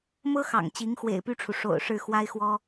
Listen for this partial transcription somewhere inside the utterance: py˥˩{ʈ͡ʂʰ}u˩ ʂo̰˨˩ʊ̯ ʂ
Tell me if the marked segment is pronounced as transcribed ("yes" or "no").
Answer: yes